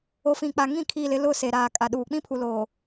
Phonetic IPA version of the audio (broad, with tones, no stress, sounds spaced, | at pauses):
o˨ f ĩ˨ k͡p a˨ ŋ ĩ˦˨ kʰ i˦˨ l ɪ˦ l ʊ˦˨ s e˨ ɾ aː˨ kʼ a˨ ɗ uː˨ k͡p ĩ˦ pʰ u˨ l oː˨